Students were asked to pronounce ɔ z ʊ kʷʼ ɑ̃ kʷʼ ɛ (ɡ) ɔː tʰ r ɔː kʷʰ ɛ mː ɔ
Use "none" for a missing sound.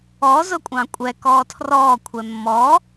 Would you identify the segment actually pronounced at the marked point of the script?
k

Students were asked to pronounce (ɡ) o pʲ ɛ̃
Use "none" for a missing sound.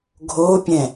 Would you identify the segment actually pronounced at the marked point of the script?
ɡʱ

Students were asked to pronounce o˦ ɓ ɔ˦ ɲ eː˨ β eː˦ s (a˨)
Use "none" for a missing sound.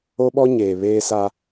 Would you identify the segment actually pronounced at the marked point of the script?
a˦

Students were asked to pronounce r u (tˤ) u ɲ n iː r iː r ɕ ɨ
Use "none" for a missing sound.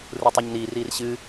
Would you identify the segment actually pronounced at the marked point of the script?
tˤ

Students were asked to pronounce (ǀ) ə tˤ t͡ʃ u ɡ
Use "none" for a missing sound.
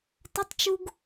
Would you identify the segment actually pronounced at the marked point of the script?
t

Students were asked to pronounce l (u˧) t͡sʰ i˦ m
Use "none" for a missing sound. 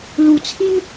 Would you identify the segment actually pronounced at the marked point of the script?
u˧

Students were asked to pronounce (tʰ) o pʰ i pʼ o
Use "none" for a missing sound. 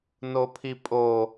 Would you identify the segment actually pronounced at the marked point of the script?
n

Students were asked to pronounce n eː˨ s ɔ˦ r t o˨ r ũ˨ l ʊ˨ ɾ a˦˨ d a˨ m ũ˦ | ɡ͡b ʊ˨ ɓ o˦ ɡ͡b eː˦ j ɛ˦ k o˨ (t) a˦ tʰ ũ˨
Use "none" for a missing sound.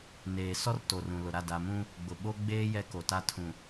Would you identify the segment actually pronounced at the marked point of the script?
t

